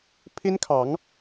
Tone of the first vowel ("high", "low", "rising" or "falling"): high